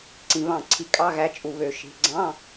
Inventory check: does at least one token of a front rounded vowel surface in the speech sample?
yes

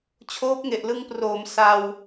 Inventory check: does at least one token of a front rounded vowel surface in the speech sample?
no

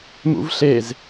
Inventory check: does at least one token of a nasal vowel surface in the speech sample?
no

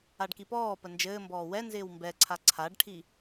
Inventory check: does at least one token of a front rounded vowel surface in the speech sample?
no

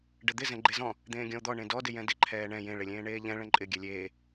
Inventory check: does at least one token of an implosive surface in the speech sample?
no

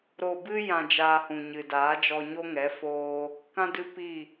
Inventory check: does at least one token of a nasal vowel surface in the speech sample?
yes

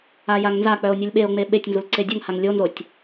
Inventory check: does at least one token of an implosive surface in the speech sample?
yes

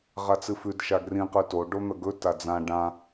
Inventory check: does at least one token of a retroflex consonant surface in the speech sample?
yes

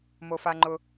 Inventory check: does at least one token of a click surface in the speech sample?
yes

